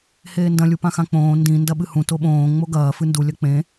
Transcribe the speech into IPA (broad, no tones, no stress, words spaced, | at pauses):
heːndɐ̃ lʲupãxãk͡põː ndĩ ndɐɓɨhũ toɓõː ŋ͡moɡɐː fɨndu lʲɐk͡pẽ